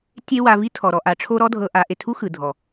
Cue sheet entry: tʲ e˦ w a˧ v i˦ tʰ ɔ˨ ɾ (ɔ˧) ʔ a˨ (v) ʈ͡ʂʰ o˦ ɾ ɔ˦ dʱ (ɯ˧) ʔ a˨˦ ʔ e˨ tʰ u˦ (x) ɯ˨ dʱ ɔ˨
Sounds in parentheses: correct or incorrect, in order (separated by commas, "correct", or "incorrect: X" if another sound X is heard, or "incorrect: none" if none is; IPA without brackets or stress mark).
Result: correct, incorrect: none, incorrect: ɤ˧, correct